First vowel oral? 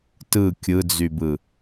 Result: yes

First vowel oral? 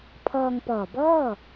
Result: yes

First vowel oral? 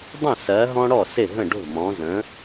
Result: no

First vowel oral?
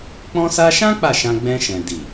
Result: no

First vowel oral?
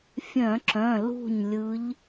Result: no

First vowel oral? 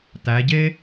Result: yes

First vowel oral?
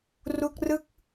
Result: yes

